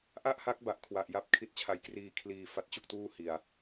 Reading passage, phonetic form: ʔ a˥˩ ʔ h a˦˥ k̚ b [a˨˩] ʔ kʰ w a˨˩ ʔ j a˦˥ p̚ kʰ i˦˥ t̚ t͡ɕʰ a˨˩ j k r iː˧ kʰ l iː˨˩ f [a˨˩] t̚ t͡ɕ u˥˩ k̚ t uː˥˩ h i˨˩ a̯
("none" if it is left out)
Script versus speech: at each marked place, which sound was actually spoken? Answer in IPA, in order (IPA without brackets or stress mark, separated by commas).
a˨˩, a˦˥